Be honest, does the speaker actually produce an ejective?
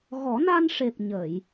no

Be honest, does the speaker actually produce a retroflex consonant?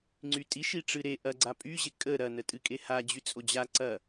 yes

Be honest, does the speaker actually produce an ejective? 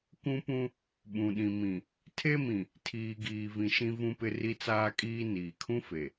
yes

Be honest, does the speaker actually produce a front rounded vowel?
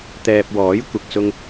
no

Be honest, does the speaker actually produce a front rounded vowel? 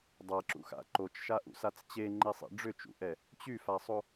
yes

